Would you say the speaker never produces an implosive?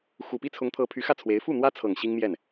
yes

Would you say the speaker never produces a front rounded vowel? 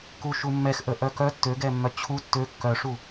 no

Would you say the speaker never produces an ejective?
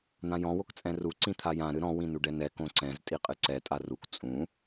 no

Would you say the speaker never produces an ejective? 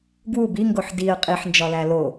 no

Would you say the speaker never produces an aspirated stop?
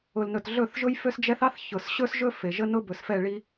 yes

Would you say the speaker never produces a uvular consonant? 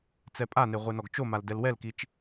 no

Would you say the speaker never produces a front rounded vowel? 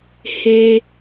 yes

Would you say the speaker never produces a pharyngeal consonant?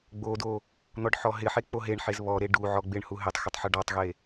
no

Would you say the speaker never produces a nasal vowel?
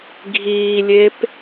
yes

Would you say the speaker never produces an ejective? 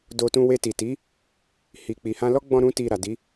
yes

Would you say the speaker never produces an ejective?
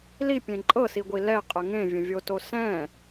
no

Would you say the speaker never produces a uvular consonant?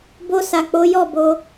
yes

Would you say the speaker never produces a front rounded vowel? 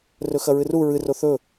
yes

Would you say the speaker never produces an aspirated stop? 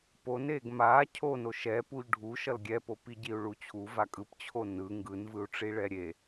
no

